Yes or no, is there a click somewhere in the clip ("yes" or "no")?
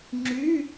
yes